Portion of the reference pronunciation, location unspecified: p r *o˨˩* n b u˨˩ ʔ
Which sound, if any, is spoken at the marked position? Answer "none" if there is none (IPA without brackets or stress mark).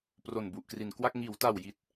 o˨˩